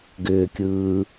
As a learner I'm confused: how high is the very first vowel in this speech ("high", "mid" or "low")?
high